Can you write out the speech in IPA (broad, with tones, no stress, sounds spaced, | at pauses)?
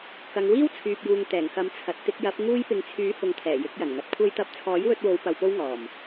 k ɐ˨˧ ŋ w iː˥ w t͡sʰ yː˨ p̚ j uː˨ ŋ t̪ ɛː˨˩ ŋ k ɐ˨˥ m t͡sʰ ɐ˨ t̚ t̪ ɪ˧ k̚ j ɐ˨˥ p̚ ŋ uː˥ j p ɪ˧ ŋ t͡sʰ yː˨˥ h ʊ˨ ŋ t̪ʰ ɛː˨˩ j ɪ˨˥ k̚ j ɐ˨˩ n ŋ ɐ˨˥ t̚ kʷʰ ɐ˧ j t̪ ɐ˨˥ p̚ t͡sʰ ɔː˨˥ j w ɵ˧ t̚ w o˨˧ w p ɐ˧ w p o˥ w ŋ ɔː˨˩ m